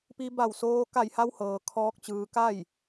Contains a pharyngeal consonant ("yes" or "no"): no